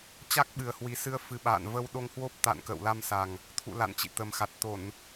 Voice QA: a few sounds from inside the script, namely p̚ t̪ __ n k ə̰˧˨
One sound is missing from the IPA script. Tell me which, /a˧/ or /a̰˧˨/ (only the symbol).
a̰˧˨